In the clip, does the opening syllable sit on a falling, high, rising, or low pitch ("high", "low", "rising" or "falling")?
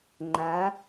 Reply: rising